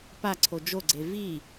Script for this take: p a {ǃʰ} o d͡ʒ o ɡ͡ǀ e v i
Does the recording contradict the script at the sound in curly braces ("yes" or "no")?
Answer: yes